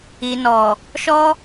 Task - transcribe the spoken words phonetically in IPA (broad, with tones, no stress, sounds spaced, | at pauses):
i˨ n ɔ˨ | ʃ ɔ˧